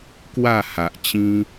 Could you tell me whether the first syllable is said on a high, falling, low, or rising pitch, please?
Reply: falling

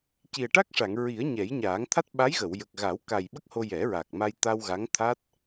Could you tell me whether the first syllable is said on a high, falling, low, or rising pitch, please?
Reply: low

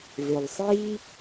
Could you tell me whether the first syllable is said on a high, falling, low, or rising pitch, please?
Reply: low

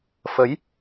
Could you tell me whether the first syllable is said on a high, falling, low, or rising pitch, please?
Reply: rising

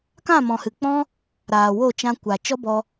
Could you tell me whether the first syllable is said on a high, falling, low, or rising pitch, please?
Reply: falling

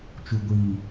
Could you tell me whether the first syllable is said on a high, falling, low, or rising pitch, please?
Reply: low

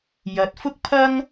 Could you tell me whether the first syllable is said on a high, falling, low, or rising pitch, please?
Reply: rising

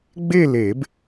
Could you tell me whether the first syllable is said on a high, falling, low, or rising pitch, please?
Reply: falling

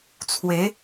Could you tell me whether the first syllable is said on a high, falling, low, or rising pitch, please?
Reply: rising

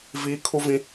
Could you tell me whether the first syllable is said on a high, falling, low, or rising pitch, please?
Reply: high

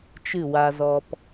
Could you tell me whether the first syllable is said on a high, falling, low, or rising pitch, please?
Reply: falling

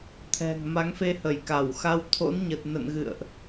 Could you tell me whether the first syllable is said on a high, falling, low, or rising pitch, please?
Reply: low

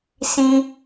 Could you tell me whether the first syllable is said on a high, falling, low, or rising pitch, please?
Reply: high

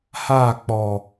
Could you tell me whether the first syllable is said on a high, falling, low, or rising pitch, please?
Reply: falling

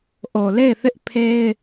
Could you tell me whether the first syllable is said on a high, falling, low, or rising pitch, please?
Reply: low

